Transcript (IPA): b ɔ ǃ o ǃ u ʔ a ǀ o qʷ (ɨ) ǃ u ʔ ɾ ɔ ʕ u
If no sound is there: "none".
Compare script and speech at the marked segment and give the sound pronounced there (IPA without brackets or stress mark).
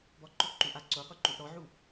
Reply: ɨ